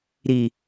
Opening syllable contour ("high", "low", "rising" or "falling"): low